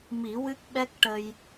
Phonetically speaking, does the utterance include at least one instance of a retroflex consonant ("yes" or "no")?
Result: yes